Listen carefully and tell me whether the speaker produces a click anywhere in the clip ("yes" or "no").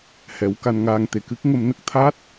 no